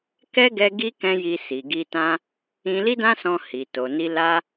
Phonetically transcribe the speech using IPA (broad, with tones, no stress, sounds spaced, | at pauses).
k ɛ˦ ɡ ɛ˦ ɡ i˦ k ɛ̃˦ j i˧ s i˨ ɡ i˧ t ã˦ | ĩ˧ l i˦ d ã˦ s ɔ̃˧ h i˨ t o˨ n i˧ l a˦